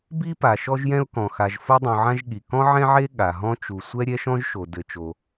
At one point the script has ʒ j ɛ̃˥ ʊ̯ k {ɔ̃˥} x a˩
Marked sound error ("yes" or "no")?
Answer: yes